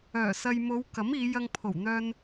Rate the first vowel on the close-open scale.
mid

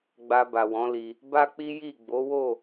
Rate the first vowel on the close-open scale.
open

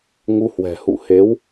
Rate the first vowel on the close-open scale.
close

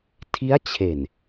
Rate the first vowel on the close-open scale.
close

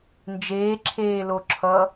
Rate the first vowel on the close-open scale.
mid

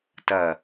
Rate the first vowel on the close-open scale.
open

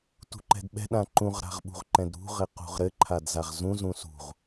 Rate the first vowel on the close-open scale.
close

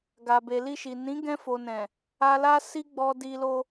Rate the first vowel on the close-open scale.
open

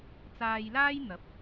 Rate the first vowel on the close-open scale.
open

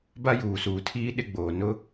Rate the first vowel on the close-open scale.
open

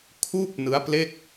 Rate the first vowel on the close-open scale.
close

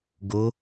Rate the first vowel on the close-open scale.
mid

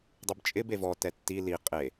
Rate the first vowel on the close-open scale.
mid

